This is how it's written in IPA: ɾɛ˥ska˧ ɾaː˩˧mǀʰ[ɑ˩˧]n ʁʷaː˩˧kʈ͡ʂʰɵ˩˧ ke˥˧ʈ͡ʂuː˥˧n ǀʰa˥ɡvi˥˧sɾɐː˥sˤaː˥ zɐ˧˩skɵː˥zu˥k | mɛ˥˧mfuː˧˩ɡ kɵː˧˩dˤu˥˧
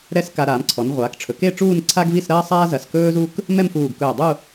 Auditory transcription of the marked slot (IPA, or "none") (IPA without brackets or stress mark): ɔ˩˧